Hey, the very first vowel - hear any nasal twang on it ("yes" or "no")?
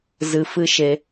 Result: no